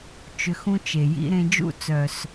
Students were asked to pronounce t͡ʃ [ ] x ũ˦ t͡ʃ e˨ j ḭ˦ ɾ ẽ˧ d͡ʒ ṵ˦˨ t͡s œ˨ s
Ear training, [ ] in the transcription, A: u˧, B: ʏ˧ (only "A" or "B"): B